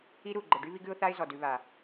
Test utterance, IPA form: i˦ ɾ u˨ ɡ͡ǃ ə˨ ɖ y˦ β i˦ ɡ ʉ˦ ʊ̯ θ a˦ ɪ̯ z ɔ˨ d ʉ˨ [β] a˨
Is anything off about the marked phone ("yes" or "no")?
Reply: no